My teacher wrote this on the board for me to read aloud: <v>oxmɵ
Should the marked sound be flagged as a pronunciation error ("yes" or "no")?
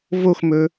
no